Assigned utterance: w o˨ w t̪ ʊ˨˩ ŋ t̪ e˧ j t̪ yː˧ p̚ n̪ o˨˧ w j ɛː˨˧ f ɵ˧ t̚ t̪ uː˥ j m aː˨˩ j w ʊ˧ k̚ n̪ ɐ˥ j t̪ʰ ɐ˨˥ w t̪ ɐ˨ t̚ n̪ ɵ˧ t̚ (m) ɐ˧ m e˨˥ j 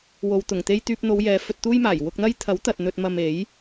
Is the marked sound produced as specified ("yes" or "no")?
yes